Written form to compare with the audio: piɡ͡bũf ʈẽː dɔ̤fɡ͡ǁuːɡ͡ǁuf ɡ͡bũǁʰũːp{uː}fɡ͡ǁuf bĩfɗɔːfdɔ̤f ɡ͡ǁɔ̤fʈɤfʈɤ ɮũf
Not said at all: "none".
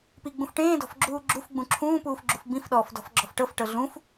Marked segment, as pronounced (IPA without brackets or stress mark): uː